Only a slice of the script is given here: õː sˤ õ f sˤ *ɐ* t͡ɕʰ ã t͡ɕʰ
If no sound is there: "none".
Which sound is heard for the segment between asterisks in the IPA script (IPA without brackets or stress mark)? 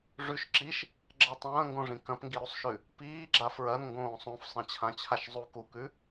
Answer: ɐ̃